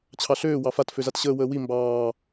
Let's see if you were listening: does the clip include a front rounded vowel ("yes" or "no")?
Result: yes